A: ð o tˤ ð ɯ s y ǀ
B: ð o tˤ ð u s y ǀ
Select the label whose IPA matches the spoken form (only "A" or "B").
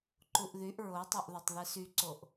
A